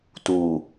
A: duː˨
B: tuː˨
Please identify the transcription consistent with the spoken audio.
B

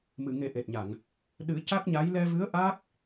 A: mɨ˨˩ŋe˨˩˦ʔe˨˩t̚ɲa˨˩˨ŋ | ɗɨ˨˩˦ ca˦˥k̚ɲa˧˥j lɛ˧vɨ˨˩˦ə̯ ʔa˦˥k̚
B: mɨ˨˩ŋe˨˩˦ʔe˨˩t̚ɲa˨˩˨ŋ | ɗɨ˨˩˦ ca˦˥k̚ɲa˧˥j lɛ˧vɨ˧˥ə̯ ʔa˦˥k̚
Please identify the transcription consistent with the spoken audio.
B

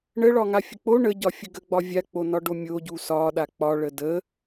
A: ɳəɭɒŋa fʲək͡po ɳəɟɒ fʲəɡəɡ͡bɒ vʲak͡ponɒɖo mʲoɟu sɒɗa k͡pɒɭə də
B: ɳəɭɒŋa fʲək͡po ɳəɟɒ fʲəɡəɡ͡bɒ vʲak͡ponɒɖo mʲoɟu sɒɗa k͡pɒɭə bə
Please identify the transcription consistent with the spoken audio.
A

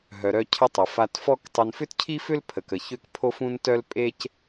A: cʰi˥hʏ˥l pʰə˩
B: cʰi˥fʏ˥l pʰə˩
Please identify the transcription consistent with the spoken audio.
B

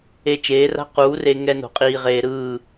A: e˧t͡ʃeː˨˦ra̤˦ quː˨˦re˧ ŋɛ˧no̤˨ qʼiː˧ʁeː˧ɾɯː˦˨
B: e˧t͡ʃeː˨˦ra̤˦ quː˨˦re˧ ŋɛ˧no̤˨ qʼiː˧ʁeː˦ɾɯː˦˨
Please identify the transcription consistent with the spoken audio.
A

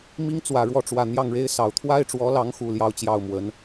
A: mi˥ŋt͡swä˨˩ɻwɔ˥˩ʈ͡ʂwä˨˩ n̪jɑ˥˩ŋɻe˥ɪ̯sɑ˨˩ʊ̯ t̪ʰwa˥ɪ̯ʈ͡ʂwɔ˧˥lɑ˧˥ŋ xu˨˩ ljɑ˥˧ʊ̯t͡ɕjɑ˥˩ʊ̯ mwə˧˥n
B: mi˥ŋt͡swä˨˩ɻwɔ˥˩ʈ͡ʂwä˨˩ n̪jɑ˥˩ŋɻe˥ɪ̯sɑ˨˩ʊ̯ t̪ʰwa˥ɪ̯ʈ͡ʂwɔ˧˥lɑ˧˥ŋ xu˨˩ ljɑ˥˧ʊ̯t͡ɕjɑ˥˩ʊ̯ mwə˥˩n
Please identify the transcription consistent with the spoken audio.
A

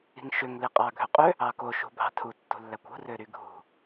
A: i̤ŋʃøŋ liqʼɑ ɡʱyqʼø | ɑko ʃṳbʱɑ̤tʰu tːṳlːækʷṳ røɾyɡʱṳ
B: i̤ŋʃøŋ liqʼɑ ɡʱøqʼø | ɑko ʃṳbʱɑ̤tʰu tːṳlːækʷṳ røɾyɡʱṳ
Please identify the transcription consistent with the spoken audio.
B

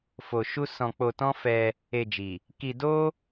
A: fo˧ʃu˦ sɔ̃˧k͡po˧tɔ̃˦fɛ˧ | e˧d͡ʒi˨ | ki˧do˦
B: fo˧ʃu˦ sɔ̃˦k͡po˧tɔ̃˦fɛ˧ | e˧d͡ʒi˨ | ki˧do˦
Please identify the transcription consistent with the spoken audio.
A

